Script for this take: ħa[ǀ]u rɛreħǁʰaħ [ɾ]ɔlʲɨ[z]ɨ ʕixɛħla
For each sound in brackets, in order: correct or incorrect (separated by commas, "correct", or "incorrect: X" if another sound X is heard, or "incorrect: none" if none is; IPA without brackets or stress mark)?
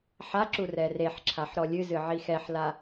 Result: incorrect: ǁ, correct, correct